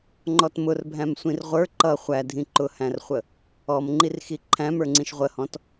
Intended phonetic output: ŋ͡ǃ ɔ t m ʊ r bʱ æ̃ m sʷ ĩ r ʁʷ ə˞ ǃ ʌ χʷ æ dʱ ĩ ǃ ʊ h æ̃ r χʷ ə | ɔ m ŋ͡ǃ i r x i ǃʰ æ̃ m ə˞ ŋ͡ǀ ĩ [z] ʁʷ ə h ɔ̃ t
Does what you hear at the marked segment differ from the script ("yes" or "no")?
yes